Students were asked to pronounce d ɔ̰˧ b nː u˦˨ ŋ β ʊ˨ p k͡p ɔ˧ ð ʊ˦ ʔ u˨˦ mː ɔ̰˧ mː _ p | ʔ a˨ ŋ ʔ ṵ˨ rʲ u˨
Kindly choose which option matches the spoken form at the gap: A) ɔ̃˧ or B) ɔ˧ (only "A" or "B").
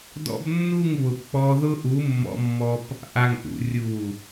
B